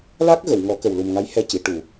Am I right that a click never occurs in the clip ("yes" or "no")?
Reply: yes